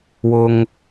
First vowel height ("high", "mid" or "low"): high